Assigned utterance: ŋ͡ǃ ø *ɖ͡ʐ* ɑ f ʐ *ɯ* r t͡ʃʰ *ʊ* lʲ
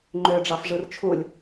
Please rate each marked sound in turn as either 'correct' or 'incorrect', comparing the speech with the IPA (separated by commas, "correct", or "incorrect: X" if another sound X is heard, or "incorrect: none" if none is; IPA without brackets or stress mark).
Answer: correct, correct, incorrect: u